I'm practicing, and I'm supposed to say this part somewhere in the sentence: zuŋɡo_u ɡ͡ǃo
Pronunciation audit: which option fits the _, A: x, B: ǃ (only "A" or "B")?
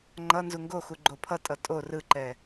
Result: A